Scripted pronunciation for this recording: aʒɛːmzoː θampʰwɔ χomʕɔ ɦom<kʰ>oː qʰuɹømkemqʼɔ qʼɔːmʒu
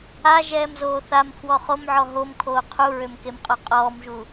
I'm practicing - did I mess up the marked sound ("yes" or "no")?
no